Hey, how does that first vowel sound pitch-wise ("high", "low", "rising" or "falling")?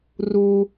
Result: low